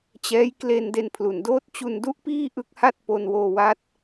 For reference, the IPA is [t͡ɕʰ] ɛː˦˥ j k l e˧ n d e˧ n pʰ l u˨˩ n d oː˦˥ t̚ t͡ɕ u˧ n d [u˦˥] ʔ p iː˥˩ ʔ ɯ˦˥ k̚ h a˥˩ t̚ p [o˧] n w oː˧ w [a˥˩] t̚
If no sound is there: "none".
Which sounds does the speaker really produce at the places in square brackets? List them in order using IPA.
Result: t͡ɕ, u˦˥, o˧, a˦˥

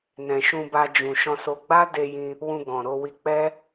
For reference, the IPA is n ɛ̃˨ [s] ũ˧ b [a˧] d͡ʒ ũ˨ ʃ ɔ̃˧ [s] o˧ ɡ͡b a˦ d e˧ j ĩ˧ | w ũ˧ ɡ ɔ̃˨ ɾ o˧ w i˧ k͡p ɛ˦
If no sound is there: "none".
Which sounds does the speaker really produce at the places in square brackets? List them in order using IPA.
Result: ʃ, a˧, s

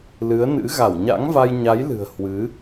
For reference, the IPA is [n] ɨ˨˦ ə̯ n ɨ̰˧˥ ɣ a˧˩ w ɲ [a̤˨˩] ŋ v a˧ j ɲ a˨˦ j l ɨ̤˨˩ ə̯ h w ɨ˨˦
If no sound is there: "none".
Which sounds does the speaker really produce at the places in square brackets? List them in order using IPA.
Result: l, a̰˧˥

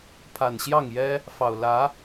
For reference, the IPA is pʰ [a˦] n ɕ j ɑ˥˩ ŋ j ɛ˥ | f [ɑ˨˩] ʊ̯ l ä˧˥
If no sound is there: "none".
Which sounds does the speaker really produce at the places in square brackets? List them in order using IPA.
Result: a˨˩, ɑ˨˩

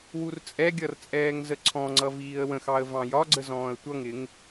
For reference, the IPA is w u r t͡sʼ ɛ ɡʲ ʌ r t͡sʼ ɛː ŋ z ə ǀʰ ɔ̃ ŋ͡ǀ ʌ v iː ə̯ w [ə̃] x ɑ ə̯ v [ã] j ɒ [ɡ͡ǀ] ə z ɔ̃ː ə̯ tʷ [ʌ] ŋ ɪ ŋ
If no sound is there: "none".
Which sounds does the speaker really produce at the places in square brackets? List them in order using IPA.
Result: ə̃, ɑ̃, ɡ͡ǀ, ʌ

